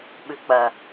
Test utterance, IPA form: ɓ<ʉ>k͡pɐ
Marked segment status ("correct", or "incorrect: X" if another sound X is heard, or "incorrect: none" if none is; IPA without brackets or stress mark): correct